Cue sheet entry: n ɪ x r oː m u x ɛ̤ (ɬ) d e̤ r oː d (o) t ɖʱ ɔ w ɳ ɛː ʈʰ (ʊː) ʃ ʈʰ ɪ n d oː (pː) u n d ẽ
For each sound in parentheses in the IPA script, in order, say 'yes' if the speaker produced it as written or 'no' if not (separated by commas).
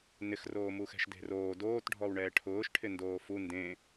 no, no, yes, no